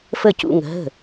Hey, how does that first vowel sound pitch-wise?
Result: falling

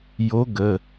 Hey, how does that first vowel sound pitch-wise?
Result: rising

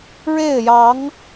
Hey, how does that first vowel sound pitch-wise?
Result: falling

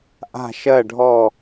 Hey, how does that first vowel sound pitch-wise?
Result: falling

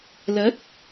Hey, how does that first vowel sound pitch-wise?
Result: rising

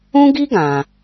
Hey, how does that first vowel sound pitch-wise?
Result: high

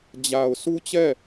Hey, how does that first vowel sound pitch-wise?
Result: low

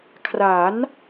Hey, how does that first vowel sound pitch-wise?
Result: rising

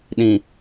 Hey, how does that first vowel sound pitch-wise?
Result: low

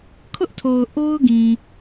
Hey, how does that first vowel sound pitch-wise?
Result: high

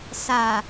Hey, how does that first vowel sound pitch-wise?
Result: low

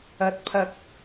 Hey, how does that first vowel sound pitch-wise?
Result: rising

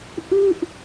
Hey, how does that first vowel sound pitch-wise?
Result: falling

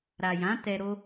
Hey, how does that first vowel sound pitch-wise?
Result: low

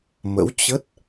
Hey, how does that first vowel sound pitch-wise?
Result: rising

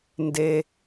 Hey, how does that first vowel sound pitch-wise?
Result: low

